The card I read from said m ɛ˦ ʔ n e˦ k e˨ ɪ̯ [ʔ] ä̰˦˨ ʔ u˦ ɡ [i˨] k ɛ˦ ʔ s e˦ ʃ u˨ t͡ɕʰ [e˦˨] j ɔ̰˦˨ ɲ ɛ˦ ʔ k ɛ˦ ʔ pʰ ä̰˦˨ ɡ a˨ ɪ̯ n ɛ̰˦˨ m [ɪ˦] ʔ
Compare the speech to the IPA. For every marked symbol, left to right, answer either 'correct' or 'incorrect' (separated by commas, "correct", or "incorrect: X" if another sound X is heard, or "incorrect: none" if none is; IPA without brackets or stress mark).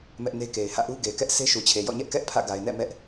incorrect: h, incorrect: e˨, incorrect: e˨, incorrect: ɛ˦